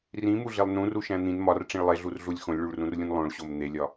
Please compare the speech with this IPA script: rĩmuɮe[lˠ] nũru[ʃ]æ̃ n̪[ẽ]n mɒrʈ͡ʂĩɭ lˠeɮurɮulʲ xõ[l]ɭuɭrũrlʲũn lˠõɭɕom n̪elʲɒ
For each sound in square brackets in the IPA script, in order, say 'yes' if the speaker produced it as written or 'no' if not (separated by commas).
yes, yes, no, no